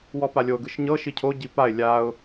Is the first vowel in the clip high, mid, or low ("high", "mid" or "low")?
mid